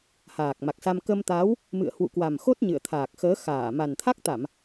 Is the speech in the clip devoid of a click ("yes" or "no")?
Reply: yes